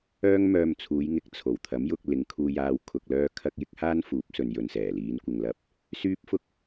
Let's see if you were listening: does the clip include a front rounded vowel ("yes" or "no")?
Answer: yes